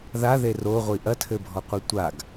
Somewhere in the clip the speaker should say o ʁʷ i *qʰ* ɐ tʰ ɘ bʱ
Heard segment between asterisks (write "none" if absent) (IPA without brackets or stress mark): ʔ